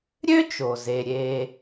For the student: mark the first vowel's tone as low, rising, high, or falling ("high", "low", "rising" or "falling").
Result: high